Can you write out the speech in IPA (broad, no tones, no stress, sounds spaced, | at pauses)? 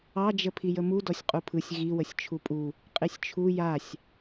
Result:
ɑ d͡ʒ ə pʰ i j ə m u d ɔ sʲ qʼ u pʰ ɯ sʲ ɣ i w ə sʲ t͡ʃʰ u pʼ u | qʼ i sʲ t͡ʃʰ u j a sʲ